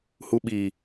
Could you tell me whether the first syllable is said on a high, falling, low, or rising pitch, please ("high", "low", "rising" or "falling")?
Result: low